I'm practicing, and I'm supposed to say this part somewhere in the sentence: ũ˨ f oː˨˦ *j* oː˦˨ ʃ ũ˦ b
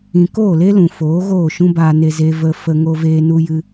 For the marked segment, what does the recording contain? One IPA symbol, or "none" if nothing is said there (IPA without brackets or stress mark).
ɣ